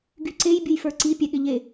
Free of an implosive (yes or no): no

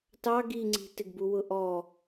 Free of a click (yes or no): no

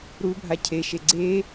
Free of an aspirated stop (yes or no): no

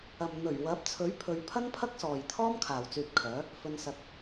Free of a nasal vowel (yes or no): yes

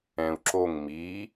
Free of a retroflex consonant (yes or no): yes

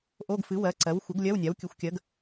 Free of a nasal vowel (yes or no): yes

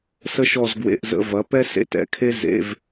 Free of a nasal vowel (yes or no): yes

